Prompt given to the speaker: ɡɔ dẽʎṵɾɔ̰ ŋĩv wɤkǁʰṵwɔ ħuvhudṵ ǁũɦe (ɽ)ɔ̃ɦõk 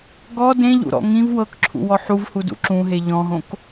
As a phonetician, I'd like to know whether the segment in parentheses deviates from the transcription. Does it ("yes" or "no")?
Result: yes